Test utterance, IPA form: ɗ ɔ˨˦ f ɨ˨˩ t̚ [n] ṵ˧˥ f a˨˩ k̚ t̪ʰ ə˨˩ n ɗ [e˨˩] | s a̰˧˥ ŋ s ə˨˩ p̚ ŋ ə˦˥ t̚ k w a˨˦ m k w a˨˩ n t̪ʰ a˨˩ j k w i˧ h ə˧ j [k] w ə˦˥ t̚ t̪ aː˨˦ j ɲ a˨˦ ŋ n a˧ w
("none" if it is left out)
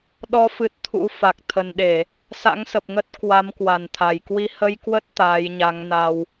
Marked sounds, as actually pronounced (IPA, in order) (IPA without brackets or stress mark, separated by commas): t̪ʰ, e˧˩˨, k